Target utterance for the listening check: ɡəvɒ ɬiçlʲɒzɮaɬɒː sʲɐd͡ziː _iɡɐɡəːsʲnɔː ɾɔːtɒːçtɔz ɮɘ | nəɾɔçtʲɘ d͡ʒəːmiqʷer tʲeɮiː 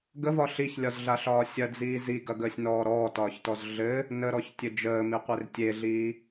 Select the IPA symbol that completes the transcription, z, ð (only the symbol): z